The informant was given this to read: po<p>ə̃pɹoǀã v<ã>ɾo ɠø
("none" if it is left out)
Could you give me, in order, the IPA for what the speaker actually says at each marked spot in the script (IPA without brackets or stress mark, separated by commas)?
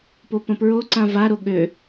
p, a